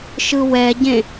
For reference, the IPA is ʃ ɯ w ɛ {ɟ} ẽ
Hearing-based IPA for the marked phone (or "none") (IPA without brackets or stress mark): ɟ